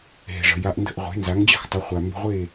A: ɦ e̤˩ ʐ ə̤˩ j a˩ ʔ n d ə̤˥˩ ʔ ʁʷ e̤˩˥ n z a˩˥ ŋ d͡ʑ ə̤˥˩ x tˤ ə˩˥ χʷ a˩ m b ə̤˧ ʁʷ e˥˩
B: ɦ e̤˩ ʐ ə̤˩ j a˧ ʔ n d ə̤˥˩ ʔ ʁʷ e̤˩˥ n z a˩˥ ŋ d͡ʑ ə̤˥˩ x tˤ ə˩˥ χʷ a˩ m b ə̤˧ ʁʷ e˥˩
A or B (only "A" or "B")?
B